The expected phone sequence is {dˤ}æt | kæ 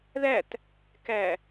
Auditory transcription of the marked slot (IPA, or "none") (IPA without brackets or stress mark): ð